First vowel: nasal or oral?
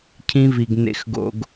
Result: nasal